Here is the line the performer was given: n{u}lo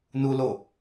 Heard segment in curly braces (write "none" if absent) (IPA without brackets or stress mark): u